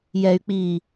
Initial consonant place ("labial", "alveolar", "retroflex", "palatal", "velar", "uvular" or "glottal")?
palatal